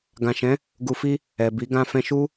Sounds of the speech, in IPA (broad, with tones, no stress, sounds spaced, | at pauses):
ɡ ã˨ ʃ ɛ̃˨˦ | ɡ u˨ f i˧ | ɛ˨ b i˨˦ ɡ ã˧ f ɛ̃˧ ʃ u˦